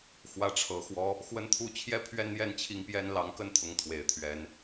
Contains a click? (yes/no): no